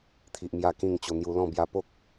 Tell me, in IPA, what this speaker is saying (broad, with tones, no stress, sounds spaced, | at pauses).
t̪ʰ i˨ ʔ m j a˧ k ĩ˥˧ ŋ t͡ɕ o˧ n̪ j u˧ l ɔ̃˥˧ b j a˧ p o˦ k̚